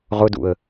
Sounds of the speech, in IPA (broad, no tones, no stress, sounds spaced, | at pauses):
ʁ ʊ d ṵ ə̯